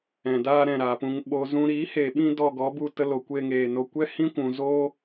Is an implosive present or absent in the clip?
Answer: present